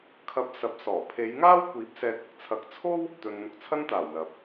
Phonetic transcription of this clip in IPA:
kʰ ɐ˨˥ p̚ s ɐ˨ p̚ s ɔː˨˩ pʰ e˨˧ j ŋ aː˥ w kʷ iː˨˥ p̚ s ɛː˨ t̚ ɪ˨ k̚ t͡sʰ ɐ˨˥ k̚ t͡sʰ o˥ w | t̪ ɵ˨ n n̪ ʊ˨ k̚ t͡sʰ ɐ˥ n t̪ aː˨˩ w l ɐ˨ p̚

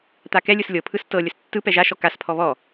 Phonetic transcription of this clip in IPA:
t̪ a k ɛ lʲ ɯ s lʲ ɤ pʰ ɯ s t ɤ lʲ ə s tː ɯ p ɛ ʒ a ʃ ɔ k a s pʰ ɔ β ɔ

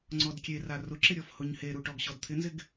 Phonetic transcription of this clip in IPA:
ŋ͡ǀ ɔ d kʲ e r a r ʊ ǁ ɪ ɾʲ ɔ f h ʊ ɲ h e ɾ u ʈ ɔ ɡ ɕ ɔ d t̪ʰ ɪ n z ɪ ɡ

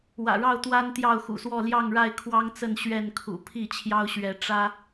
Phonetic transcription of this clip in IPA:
w ä̰˨˩ ɻ ɑ˥˨ ʊ̯ t̪ w a˦ n t̪ j ɑ˥˨ ʊ̯ x ṵ˨˩ s w ɔ˥˨ l j ɑ˥˨ ŋ ɻ a˥˨ ɪ̯ kʰ w ɑ˦ ŋ t͡s ə˥˨ n ɕ ɥ ɛ˥˨ n kʰ ṵ˨˩ pʰ i˥˨ t͡ɕʰ j ɑ˦ ʊ̯ ɕ ɥ ɛ˨˦ ʈ͡ʂ ä˦

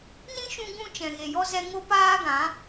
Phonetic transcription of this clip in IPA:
n ĩ˦ ʃ ũ˧ ɡ ũ˧ t͡ʃ ɛ̃˨ ɣ e˨ j ɔ˧ z ɛ˧ ŋ o˦ p aː˦ ɡ ã˨˦

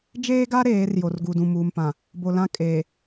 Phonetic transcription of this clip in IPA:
d͡ʒ eː˦ ɡ a˦ ɾ eː˨˦ r j o˨ r ɡ u˨ d ũ˨ m uː˨ m p ã˨ | b o˨ l ã˦ kʼ eː˨

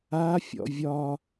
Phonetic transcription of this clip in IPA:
a fʲ ɔ̰ vʲ ɒ

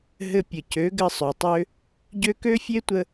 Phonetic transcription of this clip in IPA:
ɦ ɘ˧ pʲ ə˨ c ø˨˦ ɡ ɘ˧ sˤ ø˨ tˤ ø˦ | ɟ ø˧ k ø˦ fʲ e˦ tʷ ə˧

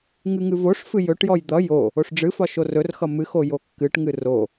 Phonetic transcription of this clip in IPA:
ŋ ɨ ŋ ɨ v o ʂ f ɨ j ɵ ʈ j ɔ j d̪ ʌ j o | o ʂ ɖ͡ʐ ɨ f ɒ ʃ o r ɵ r x ʌ m ɨ x o j o kː ɨ ʈ ŋ ɨ r o

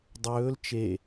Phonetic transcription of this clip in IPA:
dˤ ɵː l t͡ʃ e

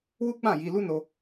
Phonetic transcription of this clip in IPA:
w u˦ ɡ͡b ã˦˨ j i˧ l u˦ n o˧

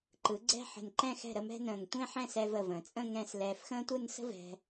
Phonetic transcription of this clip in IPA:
ǃ ɯ˩˧ ɡ͡ǀ ɛ̤˥˧ ħ ə̤˧˩ n ǃ ɛ̃˥˧ x ɛ̤˧˩ ɾ ə˥˧ m ɛ̤˥ n ə̃ː˧˩ ŋ tʷ ẽ˥˧ ħ ɛ̃˥˧ s ɛ˧ v ə˧˩ v ə̃ː˩˧ t͡sʼ ə̃˥˧ ŋ ɛ̃˥˧ s l ɛː˧ f x ə̃ː˥ tʷ ɯ˥˧ n s ə̤˥ v ɛ̤˧

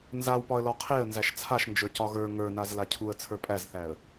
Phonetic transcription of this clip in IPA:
n z a w p ɒ ə̯ l ɒ qʰ e ə̯ n z æ ʃ t͡sʰ a ʃ n d͡ʒ ə˞ c ɒ ɣ ə˞ ŋ ə˞ n a z l a cʰ u ə̯ t͡sʰ ə˞ pʼ æ z θ æ ə̯

